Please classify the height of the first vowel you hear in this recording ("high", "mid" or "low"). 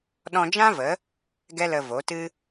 mid